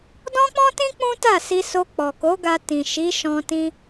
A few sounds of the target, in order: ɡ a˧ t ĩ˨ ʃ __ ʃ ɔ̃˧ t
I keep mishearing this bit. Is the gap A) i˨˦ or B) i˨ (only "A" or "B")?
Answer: A